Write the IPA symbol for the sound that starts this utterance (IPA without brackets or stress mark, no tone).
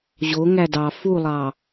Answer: ʑ